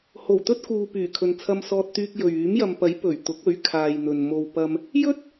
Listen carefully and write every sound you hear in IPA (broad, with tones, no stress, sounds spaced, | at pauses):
h o˨˩ w t̪ ɵ˥ t̚ k uː˨ p yː˨˩ kʰ ɵ˨ n t͡sʰ ɐ˧ m s ɔː˧ t̚ t̪ yː˧ k̚ j ɵ˨ ɥ yː˨˥ m j ɐ˨ m p ɐ˨˥ j p ɵ˨˩ ɥ t̪ ʊ˨˥ k̚ ɵ˨˥ ɥ kʰ aː˨ j n̪ ɵ˨ n m o˨ w p ɐ˧ m | j ɵ˥ t̚